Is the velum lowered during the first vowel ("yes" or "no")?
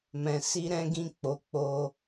yes